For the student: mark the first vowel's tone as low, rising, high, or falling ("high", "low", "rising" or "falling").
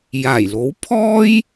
low